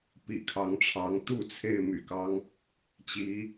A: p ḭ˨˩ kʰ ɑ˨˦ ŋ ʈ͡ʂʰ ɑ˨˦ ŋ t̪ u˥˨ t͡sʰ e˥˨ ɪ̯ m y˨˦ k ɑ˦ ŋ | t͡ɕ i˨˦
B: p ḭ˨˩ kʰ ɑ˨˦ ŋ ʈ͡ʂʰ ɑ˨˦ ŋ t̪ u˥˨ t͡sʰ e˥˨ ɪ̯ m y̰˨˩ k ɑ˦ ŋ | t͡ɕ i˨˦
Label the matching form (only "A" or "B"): B